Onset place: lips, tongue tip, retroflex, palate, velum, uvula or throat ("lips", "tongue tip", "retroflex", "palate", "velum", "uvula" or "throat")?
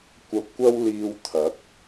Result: velum